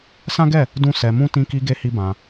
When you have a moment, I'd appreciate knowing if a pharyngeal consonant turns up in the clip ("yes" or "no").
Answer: no